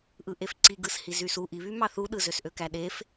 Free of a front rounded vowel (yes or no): no